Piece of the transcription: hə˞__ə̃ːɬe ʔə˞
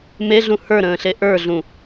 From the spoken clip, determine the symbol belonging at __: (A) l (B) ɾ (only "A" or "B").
B